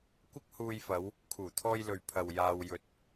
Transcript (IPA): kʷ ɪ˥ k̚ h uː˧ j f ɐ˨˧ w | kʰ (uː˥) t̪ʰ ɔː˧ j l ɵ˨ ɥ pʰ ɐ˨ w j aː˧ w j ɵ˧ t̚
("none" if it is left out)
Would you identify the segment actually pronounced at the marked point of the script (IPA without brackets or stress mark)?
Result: uː˨˩